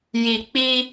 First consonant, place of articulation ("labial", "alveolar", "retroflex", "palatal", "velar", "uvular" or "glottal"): palatal